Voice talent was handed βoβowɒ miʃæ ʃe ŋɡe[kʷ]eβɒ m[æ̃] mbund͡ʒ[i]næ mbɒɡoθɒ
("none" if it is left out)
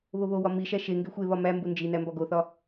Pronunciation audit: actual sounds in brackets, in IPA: xʷ, æ, i

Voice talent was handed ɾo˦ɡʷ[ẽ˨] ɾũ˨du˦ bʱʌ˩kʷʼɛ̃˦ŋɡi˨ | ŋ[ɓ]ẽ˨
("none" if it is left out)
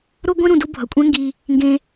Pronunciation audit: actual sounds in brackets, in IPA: ẽ˦, ɡ

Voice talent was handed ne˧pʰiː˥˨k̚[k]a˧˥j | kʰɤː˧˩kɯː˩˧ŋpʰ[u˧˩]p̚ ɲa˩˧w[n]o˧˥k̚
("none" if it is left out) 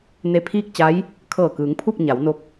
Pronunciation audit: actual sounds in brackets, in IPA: t͡ɕ, u˥˨, n

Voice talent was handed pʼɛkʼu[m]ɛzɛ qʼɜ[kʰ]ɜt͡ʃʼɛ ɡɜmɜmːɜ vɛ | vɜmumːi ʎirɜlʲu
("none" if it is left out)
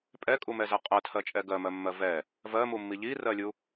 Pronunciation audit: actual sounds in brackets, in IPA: m, tʰ

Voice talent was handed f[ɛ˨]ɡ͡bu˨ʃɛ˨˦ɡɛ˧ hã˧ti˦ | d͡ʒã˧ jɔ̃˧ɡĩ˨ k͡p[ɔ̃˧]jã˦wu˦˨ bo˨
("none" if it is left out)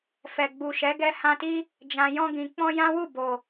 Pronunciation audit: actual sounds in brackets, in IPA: ɛ˨, ɔ̃˧

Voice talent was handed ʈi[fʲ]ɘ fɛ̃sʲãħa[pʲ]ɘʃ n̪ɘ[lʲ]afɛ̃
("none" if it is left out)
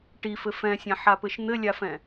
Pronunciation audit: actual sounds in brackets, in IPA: f, p, lʲ

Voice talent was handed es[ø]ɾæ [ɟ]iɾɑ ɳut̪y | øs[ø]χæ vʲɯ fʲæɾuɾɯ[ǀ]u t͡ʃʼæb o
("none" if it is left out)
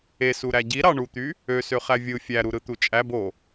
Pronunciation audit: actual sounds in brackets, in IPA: u, ɟ, ø, t̪

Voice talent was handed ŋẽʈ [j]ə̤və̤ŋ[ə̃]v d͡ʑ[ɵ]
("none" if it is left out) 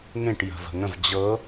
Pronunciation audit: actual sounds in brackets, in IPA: j, ə̃, ɤ

